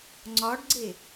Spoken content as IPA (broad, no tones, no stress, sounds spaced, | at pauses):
ŋ͡ǀ ɒ ɖ ɡ͡ǀ e